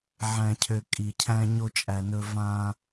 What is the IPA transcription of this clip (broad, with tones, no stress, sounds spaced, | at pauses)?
ʕ æ̃˨ cʰ ø˨ kʼ i˨ cʰ æ̃˧ ɲ o˧ t͡ʃʼ æ˨ n ɵ˧ v ã˧